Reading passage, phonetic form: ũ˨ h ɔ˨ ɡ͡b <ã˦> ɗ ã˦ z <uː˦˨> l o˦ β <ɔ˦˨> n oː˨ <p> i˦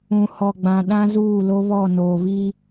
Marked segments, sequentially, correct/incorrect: incorrect, correct, correct, incorrect

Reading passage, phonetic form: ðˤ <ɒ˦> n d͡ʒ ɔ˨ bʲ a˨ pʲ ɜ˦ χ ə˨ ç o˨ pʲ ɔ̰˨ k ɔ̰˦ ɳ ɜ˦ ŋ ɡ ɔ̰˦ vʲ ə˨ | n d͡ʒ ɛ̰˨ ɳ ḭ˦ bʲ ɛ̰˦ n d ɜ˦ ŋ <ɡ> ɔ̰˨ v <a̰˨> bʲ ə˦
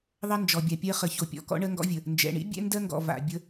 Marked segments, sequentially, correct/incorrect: incorrect, correct, correct

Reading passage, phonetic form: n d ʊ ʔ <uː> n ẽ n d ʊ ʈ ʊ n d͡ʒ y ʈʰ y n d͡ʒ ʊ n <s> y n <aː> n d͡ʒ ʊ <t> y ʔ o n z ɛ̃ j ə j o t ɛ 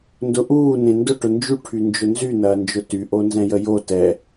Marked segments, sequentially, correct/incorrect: correct, incorrect, incorrect, correct

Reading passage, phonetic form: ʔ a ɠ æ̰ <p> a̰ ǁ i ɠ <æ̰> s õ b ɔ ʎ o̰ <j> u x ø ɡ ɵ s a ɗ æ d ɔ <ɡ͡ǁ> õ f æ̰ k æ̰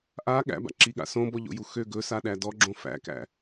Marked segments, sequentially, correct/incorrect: incorrect, incorrect, correct, correct

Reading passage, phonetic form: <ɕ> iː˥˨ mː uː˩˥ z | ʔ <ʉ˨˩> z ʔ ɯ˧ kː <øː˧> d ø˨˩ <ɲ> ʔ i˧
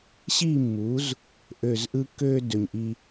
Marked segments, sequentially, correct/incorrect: correct, incorrect, correct, correct

